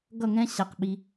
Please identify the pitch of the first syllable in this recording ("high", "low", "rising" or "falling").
falling